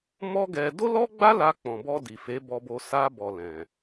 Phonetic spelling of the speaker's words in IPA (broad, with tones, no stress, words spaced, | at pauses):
mɔ˦ɡɛ˧ do˦lɔ˦ɡ͡ba˦la˧ k͡pɔ̃˨bɔ˧ di˨fe˨˦ bɔ˧bo˧ sa˧bɔ˨ lɛ̃˨